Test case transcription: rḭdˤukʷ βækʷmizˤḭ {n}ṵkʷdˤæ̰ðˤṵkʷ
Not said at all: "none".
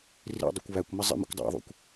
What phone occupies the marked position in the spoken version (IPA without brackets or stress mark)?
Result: m